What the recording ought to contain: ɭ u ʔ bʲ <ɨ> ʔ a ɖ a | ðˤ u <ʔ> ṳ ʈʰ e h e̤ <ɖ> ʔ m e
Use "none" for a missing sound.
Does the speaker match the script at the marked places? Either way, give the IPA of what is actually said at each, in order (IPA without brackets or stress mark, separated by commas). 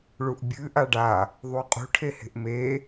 ɨ, qʼ, none